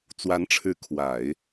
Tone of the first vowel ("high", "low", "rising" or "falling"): rising